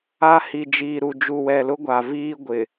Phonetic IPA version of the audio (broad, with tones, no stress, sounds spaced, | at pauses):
a˦ h i˨ d͡ʒ iː˨ ɾ u˨ d͡ʒ u˨ w ɛ˨ l ʊ˦ ɡʷ a˨ v iː˦ ɡʷ ɪ˨